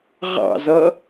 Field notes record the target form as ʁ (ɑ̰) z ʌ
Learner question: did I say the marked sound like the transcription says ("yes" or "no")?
yes